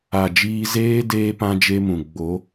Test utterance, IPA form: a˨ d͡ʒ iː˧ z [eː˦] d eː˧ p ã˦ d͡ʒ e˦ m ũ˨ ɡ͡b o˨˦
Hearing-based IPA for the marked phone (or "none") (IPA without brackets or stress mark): eː˦